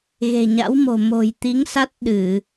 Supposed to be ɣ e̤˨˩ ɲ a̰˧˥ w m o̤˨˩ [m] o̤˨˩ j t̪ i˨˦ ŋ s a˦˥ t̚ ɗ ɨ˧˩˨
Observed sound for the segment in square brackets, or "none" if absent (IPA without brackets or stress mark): m